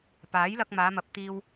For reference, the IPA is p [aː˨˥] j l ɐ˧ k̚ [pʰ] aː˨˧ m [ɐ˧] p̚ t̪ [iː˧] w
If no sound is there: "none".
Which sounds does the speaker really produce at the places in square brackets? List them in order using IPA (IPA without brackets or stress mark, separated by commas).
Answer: aː˨˥, m, ɐ˨, iː˧